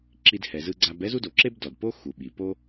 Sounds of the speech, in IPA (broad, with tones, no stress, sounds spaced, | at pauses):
ǁ i˧ d h ɛ˩ z ɯ˧ ɡ͡ǀ a˧ b ɛ˥ z u˥ d o˩ ǁ e˥ b d ɔ˩ d p o˥ x u˩ ɓ i˩ p o˥